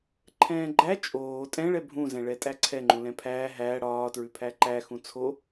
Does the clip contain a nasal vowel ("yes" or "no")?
yes